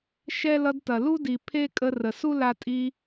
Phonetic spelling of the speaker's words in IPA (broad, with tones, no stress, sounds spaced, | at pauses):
ʃ ɛ˦ l ʌ˧ d t ɐ˨ l u˦ d i˨ pʰ e˦ kʼ ə˧ r ə˨ s u˦ l a˧ tʼ i˧